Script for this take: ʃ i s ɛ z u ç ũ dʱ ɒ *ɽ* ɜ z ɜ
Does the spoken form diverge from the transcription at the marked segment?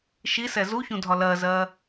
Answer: yes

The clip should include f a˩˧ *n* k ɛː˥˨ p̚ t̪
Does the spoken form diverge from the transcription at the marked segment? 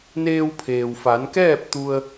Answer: no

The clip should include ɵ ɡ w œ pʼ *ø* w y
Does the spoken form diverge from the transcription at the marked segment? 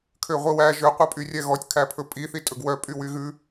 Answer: yes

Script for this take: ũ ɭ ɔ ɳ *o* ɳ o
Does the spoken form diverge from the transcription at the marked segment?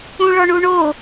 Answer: yes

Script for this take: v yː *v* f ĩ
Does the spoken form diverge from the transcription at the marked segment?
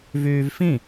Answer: no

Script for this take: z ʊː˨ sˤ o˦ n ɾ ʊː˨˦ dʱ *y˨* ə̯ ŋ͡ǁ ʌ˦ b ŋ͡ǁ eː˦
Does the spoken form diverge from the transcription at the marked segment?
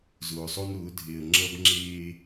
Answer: yes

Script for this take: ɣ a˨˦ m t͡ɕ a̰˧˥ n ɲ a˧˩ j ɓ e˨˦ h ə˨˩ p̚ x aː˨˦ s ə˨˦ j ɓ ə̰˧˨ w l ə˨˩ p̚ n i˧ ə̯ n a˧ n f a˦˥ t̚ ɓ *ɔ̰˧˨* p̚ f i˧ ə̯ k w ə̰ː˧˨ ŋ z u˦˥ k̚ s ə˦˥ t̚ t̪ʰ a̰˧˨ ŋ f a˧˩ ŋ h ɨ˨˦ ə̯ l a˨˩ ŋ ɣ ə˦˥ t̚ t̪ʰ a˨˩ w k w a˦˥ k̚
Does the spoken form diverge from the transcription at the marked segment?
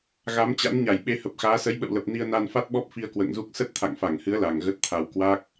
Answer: yes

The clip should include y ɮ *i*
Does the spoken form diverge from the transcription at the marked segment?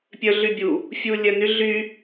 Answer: yes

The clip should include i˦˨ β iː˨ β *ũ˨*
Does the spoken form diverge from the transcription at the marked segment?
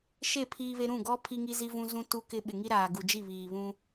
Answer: yes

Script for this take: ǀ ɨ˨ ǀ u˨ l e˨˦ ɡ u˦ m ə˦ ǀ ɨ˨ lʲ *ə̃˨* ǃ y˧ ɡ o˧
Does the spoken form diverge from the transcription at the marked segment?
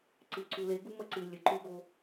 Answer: yes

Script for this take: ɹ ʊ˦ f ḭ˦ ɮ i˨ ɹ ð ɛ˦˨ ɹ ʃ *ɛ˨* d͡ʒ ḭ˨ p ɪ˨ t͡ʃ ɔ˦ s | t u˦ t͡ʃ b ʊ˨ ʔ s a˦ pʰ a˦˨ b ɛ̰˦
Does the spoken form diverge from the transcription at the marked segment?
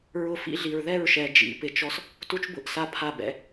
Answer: no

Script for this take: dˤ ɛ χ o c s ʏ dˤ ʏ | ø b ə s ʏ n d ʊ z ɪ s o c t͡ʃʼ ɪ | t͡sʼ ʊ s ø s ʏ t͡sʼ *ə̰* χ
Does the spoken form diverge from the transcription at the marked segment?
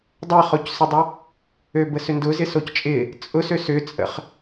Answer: no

